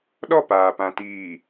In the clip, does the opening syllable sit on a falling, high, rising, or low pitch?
falling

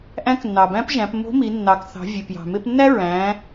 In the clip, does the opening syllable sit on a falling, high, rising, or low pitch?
rising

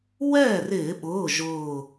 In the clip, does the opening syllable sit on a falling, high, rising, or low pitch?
falling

